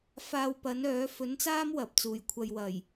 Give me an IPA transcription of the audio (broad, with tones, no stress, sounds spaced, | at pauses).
f aː˧ w p ɐ˨˥ n œː˨˥ f ɵ˨˥ n t͡s aː˥ m w ɐ˨˥ p̚ t͡s uː˨˩ j kʷʰ ɐ˧ j w ɐ˨˩ j